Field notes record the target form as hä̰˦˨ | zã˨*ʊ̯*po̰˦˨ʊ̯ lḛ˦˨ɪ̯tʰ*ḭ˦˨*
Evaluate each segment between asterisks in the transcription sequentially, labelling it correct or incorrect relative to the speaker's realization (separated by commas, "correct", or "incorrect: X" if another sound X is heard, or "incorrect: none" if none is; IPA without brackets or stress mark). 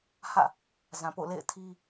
incorrect: none, incorrect: i˦